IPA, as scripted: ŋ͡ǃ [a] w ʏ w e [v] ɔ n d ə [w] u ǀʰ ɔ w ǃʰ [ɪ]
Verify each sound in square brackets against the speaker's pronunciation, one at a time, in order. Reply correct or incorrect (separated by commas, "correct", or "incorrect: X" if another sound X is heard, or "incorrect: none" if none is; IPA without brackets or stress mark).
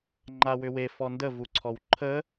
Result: correct, incorrect: f, incorrect: v, incorrect: ə